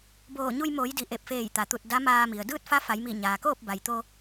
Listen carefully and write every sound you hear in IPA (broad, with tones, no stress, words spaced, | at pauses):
boː˧˩ɲu˧j moː˩˧jdi˩ ʔe˧˩p̚feː˧˩jt̪a˩t̪u˧˩t̚ da˧˥maː˧mi˩ə̯ dɯː˥˨t̚fa˧˥fa˩˧jmi˧˩ ɲaː˩koː˥˨p̚ba˩j t̪o˧